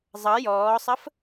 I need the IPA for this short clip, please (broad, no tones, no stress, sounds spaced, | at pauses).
zˤ ʌ j ɔː sˤ ə f